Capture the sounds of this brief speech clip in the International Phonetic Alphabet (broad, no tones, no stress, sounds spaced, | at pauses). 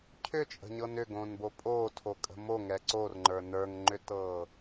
cʰ ʏ t͡ʃʼ ə̤ ɲ ɤ n ʏ ɡ õː n b o pʼ oː tʰ o kʼ ə̤ m o ŋ ɛ ǀ o r ŋ͡ǃ ə˞ n ə˞ ŋ ŋ͡ǃ ʏ t ɤː